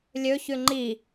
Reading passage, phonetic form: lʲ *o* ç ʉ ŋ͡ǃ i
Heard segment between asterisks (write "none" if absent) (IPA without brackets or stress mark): ɵ